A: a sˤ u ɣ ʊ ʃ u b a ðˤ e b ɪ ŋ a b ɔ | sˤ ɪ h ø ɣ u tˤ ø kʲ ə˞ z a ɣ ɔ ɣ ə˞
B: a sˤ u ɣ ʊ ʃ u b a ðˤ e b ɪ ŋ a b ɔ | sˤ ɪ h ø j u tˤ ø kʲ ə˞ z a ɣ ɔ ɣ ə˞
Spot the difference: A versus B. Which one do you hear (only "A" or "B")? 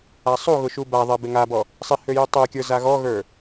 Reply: B